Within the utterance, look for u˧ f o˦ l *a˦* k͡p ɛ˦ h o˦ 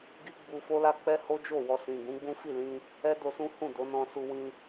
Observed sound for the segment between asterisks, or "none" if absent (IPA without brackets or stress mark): a˦